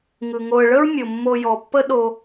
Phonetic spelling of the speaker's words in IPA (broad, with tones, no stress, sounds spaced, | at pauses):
ŋ ɯ˩ ŋ o˨ ə̯ ɭ ə˥ ɹ mʲ o˩ mː o˨ j ɔ˩ pː ə˦ ɗ o˦